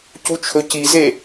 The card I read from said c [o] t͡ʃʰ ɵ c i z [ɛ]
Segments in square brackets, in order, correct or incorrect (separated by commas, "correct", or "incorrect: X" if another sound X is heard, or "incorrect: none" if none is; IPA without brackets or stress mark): incorrect: u, incorrect: e